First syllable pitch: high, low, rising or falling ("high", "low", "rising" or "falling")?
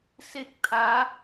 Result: falling